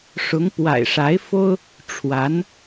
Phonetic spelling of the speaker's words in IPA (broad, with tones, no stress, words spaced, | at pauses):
ʂʊ˧˥ŋpwa̰˨˩ɪ̯ʂa˧˥ɪ̯fo˥ʊ̯ | ʈ͡ʂʰwa˧˥n